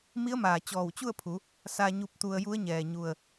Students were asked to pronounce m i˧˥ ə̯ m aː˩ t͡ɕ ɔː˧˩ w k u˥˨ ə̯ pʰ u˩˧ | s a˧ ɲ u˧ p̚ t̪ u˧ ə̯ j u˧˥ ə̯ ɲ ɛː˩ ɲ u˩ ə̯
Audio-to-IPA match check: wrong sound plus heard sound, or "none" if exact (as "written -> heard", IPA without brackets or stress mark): k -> t͡ɕ